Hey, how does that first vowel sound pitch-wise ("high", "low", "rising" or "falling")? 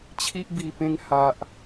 high